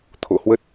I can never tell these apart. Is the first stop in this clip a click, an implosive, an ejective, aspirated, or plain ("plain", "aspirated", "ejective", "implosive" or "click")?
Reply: aspirated